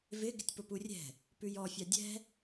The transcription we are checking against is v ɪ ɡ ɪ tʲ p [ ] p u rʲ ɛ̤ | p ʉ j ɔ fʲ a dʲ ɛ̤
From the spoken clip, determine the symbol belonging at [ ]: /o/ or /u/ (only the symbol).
o